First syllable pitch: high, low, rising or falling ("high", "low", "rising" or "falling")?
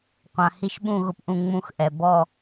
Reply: low